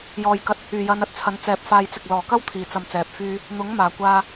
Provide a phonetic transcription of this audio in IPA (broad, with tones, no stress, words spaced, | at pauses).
jɔː˨jkɐ˧t̚ | yː˨˩jɐ˨˧n ɐ˧t̚t͡sʰɐ˨˧n t͡sɛː˧p̚faː˧jt͡sɪ˨k̚ lɔː˨˩kɐ˥wt̪ʰiː˨˩t͡sɐ˨m t͡sɛː˧p̚fyː˥ | n̪ʊ˨˥ŋmaː˨˩kʷaː˧